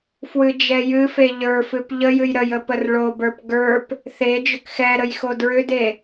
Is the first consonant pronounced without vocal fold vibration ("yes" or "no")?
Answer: yes